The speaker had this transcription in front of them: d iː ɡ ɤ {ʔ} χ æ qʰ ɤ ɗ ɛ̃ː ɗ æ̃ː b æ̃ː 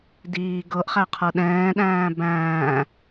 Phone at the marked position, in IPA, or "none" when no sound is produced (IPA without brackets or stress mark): ʔ